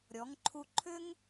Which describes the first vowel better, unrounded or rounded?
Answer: rounded